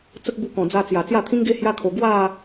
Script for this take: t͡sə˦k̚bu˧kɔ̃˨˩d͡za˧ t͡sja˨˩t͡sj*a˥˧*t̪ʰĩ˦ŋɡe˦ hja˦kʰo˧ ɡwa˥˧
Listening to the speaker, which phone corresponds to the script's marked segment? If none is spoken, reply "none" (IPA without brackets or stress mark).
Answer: a˥˧